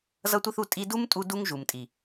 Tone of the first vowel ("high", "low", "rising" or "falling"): high